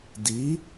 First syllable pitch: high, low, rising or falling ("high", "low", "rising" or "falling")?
rising